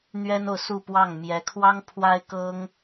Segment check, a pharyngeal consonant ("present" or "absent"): absent